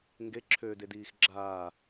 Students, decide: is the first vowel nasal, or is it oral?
oral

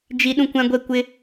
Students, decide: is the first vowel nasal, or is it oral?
oral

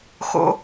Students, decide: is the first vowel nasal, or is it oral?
oral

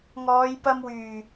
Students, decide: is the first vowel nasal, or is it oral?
oral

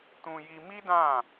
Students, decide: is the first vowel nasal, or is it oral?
nasal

